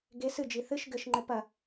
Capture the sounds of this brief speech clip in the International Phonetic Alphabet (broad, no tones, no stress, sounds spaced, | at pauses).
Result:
ɡ e s ɨ d͡ʒ i θ ɨ ʃ ɡ ɘ ʃ ŋ͡ǃ ɘ p ɐ